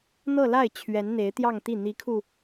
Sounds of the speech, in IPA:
n̪ɤ˥˧la˥˩ɪ̯ t͡ɕʰɥɛ˧˥nn̪e˧˥ɪ̯t̪jɑ˥˧ŋt̪i˥˩ n̪i˧˥kʰu˧

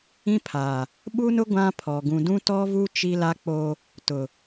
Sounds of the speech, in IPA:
ĩ˦pʰa˨ | ɓu˦nʊ˦ ɡʷã˦pʰɔ˨ ɡũ˨dũ˦tɔ˦vu˦ t͡ʃi˦la˦k͡po˦ | tʊ˨

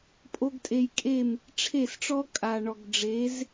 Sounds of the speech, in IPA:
pʼo˦ɡtʼe˧j kʼe˦˨m | ʈ͡ʂʰe˦˨sʈ͡ʂɔ˦ kʼa˨ɳɔ˨ɡɖ͡ʐe˨˦z

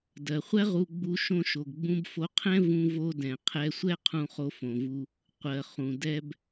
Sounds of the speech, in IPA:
dɜ˩χʷɛ˥ʁu˧ɡ͡bu˧ ʃõ˧ ʃo˩ɡɡ͡bũ˧bfo˧qʰɛ̃˥ vũ˧vo˧ dɛ̃˩qʰɛ˧sʷɛ˥ qʰũ˧χo˧fõ˩vu˧ | qʷɜ˩χũ˩ dɛ˧b

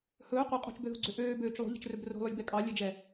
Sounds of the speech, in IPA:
hɵː qʷe qʼo̤t͡ʃbøðo̤ɡ͡ǀø ʔøːbøːt͡ʃ lˠo̤ʎɛ̤t͡ʃrɵb ro̤lˠølʲbɛ kʼɑlʲɛd͡ʒɛ

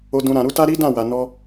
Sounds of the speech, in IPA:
o˨dũ˨ ɾã˨ɾu˨˦ta˦ ɾi˦dã˦˨wa˨ nɔ˧

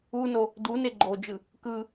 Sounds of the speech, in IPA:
uno | dune ɡ͡ǃod͡ʒɯ | kɯ

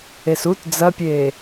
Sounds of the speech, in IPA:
esut d͡zɐpʲeː

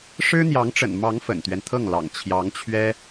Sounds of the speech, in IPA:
ʂɻ̩˥n̪jɑ˧˥ŋʈ͡ʂə̰˨˩nmɑ˧˥ŋ fə̰˨˩nt̪ɥɛ˦nt̪ʰɤ˥˩ŋlɑ̰˨˩ŋ t͡ɕʰjɑ˧˥ŋt͡ɕʰɥɛ˥

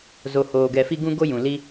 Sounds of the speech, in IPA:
zo˧hoː˧ ɡɛ˧fi˦ ɡũ˦ɡo˦ jũ˨li˦

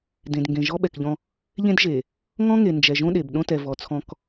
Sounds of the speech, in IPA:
dẽ˨d ŋɡẽ˨ʒɔ˦ɓɛ˨kʎɔ̃˦ | ʎẽ˦dʒe˨ | ŋɔ̃˦ŋe˨ nd͡ʒɛ˨ʒõ˦ɗe˨b ɗõ˦tɛ˨vɔ˨t͡sʰɔ̃˦k

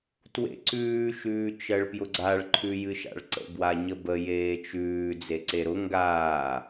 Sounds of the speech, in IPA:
twḛǀʉː ʃʉːt͡ʃɜɭpjʊɡ͡ǀaɭ ǃʰʉjɨʃa̰ɭǀə̰ bwaɲəbə jeːt͡ʃʉː d͡zeǀeɾʊ ŋɡaː

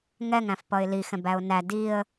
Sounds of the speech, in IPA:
ŋɛŋæ̃f pʌɪ̯lixɛ̃b æʊ̯næ diə̯

